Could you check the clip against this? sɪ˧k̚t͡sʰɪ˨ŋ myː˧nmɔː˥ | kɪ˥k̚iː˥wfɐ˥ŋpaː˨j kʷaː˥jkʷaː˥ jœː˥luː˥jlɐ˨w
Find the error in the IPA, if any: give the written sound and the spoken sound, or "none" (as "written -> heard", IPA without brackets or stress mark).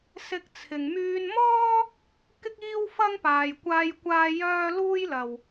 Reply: none